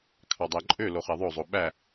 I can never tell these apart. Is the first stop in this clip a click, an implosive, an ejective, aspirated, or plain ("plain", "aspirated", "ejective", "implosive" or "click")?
aspirated